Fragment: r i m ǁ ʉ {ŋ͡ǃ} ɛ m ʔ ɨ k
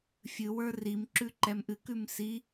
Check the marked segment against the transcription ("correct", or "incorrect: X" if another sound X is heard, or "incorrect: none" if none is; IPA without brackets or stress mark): incorrect: ǃ